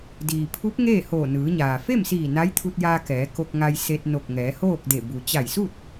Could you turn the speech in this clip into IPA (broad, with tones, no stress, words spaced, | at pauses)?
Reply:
diː˩pʰu˧˥p̚ ŋeː˥˨hoː˧˩nɯː˩˧ɲaː˩ fe˥˨msiː˧˩ na˧˥jt̪ʰu˧t̚jaː˧ kɛː˩˧ko˧k̚ ŋa˧jse˧t̚ no˧˩k̚ŋɛː˩˧hoː˥˨k̚de˧˩ bu˩t͡ɕa˧˩jsu˥˨t̚